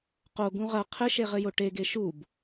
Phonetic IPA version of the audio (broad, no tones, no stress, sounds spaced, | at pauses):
q o ɡ ũ ʁ ɐ qʰ ɘ ʃ e ʁ ɘ j o ʈ e ɡ e ʃ u b